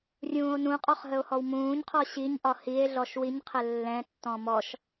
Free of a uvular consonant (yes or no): no